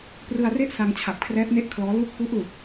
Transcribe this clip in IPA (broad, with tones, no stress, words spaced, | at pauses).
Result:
prɯ˧a̯re˥˩ʔ sa˧ŋt͡ɕʰa˨˩p̚ kʰrɛː˦˥p̚ne˥˩ʔkʰlɔː˦˥ lu˥˩k̚ pu˦˥ʔlu˨˩k̚